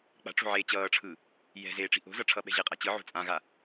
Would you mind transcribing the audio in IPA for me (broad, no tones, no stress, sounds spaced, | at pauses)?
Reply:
k͡p a̤ ʈ͡ʂ o̤ ʕ eː t͡ɕ ʌː ʈ͡ʂʰ ɯ | j ɛ̤ z eː ʈ͡ʂ i̤ ʔ o̤ z ʌ ʈ͡ʂʰ ʌ ɓ ɛ̤ ʑ e qʼ a t͡ɕ ɯ ʕ o̤ t͡sʼ ã ɣ a